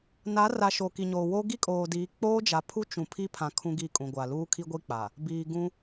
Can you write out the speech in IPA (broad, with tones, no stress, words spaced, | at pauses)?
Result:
na˨˦ra˨ ʃo˨ki˨ɲoː˨wo˦ ɡi˦kʼoː˨diː˨˦ k͡poː˦d͡ʒa˨ pʰu˦t͡ʃũ˨ pʰi˦pʰã˨ kʰũ˦ɡi˦˨kʼũ˨ɡʷa˨ luː˦kʰi˦ɡʷi˦ k͡pa˨ | biː˨ ɡũ˦